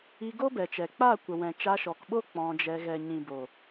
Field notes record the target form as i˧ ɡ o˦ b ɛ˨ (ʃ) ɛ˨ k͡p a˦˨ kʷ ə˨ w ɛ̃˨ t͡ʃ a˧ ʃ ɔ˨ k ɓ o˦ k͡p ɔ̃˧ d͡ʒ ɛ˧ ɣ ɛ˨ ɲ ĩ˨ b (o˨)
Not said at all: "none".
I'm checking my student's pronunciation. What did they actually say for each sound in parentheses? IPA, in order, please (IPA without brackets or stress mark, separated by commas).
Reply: t͡ʃ, o˨